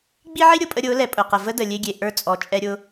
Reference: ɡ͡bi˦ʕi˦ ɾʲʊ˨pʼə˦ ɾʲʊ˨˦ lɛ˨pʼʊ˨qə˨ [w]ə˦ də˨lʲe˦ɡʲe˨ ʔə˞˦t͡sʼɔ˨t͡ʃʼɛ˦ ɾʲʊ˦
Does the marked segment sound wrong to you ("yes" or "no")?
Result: yes